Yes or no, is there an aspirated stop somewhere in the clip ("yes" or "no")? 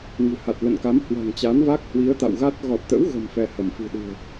no